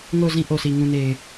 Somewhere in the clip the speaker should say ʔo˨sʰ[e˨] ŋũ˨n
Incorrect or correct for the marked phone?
incorrect: i˨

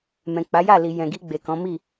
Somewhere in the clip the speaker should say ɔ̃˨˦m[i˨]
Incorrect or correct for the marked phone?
incorrect: i˦˨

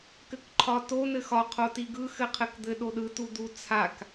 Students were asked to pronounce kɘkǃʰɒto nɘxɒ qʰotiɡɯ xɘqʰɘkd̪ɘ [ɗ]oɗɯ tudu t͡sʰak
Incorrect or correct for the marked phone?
correct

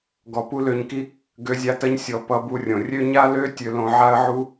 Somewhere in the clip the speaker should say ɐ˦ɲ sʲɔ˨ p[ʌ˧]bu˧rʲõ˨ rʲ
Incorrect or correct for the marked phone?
correct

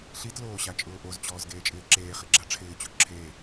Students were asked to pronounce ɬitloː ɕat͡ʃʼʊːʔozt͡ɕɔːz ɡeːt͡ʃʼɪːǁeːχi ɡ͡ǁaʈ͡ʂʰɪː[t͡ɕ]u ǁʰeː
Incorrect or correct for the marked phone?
correct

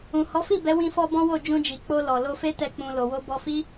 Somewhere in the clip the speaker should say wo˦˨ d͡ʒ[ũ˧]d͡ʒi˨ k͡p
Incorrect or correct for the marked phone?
correct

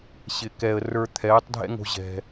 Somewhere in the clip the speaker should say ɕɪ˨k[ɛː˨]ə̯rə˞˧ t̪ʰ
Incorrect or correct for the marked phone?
correct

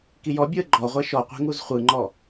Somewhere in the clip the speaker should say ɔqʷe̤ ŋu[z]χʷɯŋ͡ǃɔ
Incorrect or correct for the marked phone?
correct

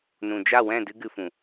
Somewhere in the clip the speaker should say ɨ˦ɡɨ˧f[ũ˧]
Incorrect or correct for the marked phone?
incorrect: ũ˨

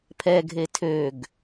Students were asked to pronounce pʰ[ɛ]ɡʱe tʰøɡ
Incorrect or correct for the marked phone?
correct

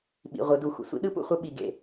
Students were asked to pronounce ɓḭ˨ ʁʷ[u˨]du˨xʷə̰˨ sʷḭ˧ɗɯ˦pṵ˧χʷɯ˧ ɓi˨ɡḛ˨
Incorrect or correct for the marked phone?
incorrect: ɯ˨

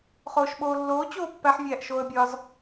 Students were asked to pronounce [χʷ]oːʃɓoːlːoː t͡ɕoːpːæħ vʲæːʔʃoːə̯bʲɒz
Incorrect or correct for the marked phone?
incorrect: χ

